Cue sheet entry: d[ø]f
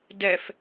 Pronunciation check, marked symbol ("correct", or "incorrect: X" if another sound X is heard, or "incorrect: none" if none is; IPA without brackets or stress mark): incorrect: ɛ